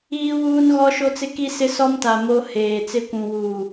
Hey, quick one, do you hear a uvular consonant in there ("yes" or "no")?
no